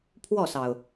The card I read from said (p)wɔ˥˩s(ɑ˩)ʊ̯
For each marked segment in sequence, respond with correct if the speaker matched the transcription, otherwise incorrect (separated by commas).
incorrect, correct